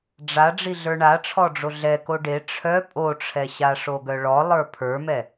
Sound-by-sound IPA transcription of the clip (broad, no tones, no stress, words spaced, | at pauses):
ɖ͡ʐa ɖ͡ʐiɮə˞ɳaʈ͡ʂʰɔ ɖ͡ʐoɮɛ koɖe ʈ͡ʂʰœ pʼoʈ͡ʂʰɛ ɕaʂoɡœɭɔ lˠə˞pʰə˞mɛ